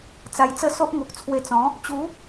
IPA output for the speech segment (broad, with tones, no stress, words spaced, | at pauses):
t͡sa˧jt͡sə˥˧so˦ʔ ŋo˨k̚t͡sʰwe˧t͡sɔ̃˨˦ | t͡ɕu˨˦